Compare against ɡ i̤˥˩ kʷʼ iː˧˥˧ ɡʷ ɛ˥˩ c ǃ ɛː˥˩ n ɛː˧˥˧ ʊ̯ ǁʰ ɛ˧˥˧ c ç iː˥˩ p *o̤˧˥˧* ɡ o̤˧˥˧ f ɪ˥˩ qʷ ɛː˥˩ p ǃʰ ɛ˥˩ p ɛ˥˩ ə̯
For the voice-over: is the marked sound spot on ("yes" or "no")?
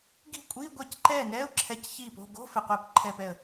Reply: yes